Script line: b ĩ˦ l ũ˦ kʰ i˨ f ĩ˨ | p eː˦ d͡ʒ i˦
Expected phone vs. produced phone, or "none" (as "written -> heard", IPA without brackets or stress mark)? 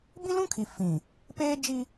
none